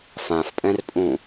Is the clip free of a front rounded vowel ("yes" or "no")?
yes